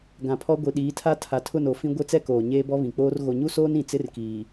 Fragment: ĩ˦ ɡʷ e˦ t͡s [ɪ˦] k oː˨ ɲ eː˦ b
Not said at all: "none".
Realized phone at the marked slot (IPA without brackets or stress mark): ɛ˦